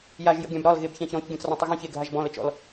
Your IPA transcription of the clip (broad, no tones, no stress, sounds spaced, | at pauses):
j a ʒ j ə̰ ɡʲ ã b ɾ ɒ l ɣ e b ç ã ç ɾ ɔ̃ ç ɡʲ ɔ̃ t͡s r ɔ̃ tˤ ə ɣ ɔ̃ ç e ɡʱ a ʒ b ɔ̃ l ə t͡ʃ ɔ̰ l